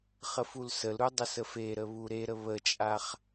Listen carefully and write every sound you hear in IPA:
χ ə f u l s ə l ɾ u dˤ ə s ə f e ɾ ə β u ɾ e ɾ ə β ə t͡ʃʼ a χ

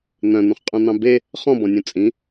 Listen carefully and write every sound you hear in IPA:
n̪ œ̃ n̪ ũ χ qʼ ũ n̪ ɑ̃ b e | χ ɔ̃ b ɔ̃ nʲ ũ t͡sʼ ĩ

